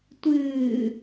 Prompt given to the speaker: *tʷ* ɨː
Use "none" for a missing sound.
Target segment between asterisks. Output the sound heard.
tʷ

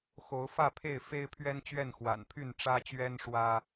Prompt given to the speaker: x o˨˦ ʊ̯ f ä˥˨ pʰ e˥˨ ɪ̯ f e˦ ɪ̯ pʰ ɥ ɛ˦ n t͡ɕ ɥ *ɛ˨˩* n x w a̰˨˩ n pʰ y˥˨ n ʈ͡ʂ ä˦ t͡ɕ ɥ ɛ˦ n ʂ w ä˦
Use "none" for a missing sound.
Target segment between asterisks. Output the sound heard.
ɛ˥˨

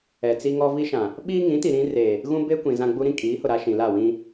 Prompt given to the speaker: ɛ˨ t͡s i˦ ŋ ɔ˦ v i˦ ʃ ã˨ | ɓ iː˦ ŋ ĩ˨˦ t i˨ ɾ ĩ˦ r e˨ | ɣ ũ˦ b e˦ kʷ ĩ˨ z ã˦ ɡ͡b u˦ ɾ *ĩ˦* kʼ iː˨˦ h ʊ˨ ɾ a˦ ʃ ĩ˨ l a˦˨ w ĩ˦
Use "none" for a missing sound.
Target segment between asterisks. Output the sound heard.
ĩ˦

